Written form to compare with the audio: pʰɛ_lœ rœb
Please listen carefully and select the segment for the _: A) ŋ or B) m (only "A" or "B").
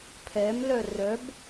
B